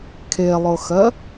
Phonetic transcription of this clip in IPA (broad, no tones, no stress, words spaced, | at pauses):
kʰelˠʊxɜ